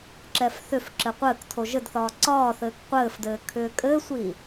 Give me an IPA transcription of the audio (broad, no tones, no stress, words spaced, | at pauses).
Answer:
ǁɛfθʏfǁɘ qʷɘːktʰo ʒɘdθɒː ǀɒːθɘːk qʷɘːfdɘː kʰʏːkʼɘːsʷi